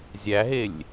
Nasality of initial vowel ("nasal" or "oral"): oral